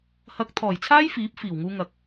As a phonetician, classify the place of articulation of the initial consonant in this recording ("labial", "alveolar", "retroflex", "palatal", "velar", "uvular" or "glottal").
glottal